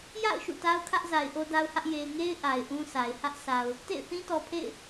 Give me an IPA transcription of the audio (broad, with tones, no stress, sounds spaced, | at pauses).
j a̰˦˨ ʊ̯ ʃ ṵ˦˨ t a˦ ʊ̯ kʰ ä˦ ʔ z a˨ ɪ̯ ʔ o˦ d a˦ ʊ̯ h ä˦ ʔ j e˨ ɪ̯ ŋ e˦ ɪ̯ ʔ a˨ ɪ̯ ʔ ũ˦ s a˨ ɪ̯ h ä˦ ʔ s a˨ ʊ̯ | t ḛ˦˨ ɪ̯ θ ĩ˦ t ɔ˨ pʰ ḛ˦˨ ɪ̯